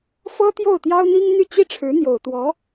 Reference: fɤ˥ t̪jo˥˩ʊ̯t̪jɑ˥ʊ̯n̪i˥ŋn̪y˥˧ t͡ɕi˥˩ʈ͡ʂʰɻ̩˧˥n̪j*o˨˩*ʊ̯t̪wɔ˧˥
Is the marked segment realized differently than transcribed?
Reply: no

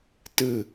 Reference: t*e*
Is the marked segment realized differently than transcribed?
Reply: yes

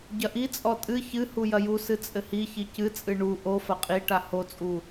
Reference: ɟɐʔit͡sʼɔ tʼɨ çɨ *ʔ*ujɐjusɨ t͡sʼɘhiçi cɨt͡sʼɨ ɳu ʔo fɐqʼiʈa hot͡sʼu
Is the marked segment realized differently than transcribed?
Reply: yes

